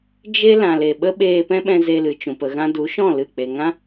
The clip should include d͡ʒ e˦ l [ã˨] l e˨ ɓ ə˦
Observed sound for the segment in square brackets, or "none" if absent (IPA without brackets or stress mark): ã˨